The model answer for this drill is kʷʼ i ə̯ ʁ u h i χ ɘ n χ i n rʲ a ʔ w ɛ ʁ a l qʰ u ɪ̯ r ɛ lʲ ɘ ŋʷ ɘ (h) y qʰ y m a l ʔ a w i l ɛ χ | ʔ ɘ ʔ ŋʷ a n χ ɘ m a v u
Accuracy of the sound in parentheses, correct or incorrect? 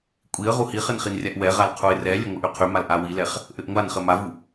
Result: incorrect